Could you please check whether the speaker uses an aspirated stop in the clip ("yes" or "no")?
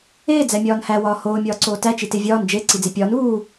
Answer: no